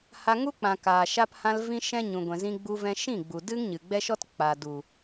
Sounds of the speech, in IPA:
ha˧ŋu˦k͡pã˨ kaː˨ʃa˧phã˧l vĩ˦ʃɛ̃˦ ɲũ˨ɡʷɛ̃˨ zĩ˧ɡ͡bu˧vɛ̃˧ ʃĩ˦˨ɡ͡bu˨ dɨ˦ŋɲɨ˨ɡ͡bɛ˦ʃɔ˦t k͡paː˨du˨

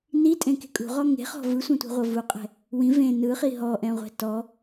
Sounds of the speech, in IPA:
nitʼẽke̤ kʼṳʁɔ ŋe̤χɔ̤ vɯsʷɛ̃tʷɛ̤ʁʷɤ vuqʼɛ̤ | wĩ vẽ nɯχi ɦɔʔɛ̃ʁʷɛ̤ tɔ

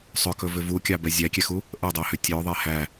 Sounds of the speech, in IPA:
sˤʏkɵvʏ vukʲɑbɛ zʲækʲɛxu | ʔədˤɛhʏ tʲɵðˤe hæ

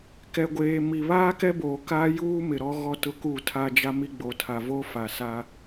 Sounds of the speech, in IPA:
kɛ˨ɡʷeː˨mi˨ βaː˦kɛ˦boː˨ kaː˦ juː˦ mɪ˨ɾɔ˦ɣɔ˦tʊ˦ ku˦˨tʰa˦d͡ʒa˦mi˦ ɡ͡bo˨tʰa˨vo˦ fa˨ sa˦

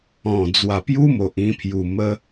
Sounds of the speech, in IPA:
ɔ̃˨˩ d͡zwa˨˩pju˦mo˨ʔ ĩ˧pʰju˨˩ mə˧

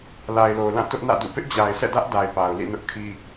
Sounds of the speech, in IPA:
la˨ɪ̯lo˨ʊ̯lã˦˨ tʊ˦ʔnä̰˦˨dṵ˦˨ pɪ˦ʔd͡ʑa˨ɪ̯sɛ̰˦˨dä˦ʔ da˨ɪ̯pa˨ʊ̯lḭ˦˨ nʊ˦ʔkʰi˦

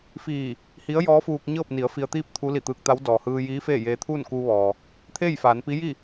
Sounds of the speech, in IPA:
fiː˧˩ | hi˧˥ə̯jɔː˧˥fuː˧k̚ ɲɤː˥˨p̚ni˩˧ə̯fi˧ə̯t̪iː˥˨p̚ t̪ʰu˧˥li˧˩t̪ɯː˧k̚t̪a˧˥w dɔː˩hɯː˧jiː˧˥ feː˥˨ jeː˧t̪ʰuː˥˨nkuː˧ ʋɔː˩ | t̪ʰeː˥˨jfaː˩˧npi˧˥ji˥˨

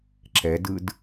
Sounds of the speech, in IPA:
ǁɛdɯd

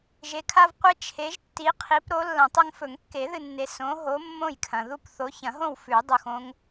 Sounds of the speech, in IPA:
ʒe˨˦ kʰa˦vqʷe˦ t͡ʃʰe˨˦ʒtːi˨˦qʰi˨˦p ɾo˨˦ lːɐ̃˨˩˦tˤɐ˦ŋ fɵ˨˩˦ŋkːe˨˩˦ðɨ˨nːe˨ sõ˨˦ɦo˨˦ mːõ˥˨jkʰɐ̃˨ ðu˥˨pθo˨˦çɐ̃˨˩˦ɦõ˥˨w fʉ˨˩˦ dˤu˨xõ˦ŋ

